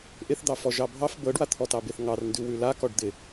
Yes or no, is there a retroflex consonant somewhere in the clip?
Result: yes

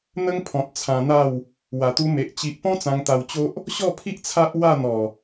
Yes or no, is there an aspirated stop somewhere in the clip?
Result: yes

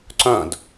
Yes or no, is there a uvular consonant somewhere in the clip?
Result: no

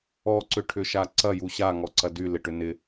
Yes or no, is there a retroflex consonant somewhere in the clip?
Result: yes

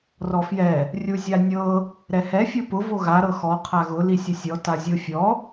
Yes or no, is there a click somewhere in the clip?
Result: no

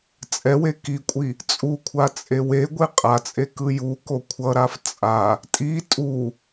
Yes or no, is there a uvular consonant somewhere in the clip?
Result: yes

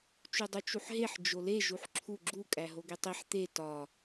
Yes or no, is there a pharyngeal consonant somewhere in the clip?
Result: yes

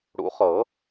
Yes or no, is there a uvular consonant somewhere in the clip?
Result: yes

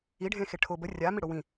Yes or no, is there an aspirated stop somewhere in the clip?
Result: yes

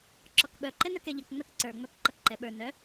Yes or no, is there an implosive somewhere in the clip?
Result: yes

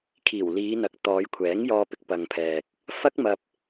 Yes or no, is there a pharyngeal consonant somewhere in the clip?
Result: no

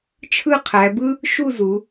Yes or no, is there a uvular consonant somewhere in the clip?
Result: yes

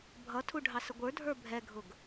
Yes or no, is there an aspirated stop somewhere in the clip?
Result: yes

